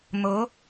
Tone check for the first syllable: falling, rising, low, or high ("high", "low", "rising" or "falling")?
rising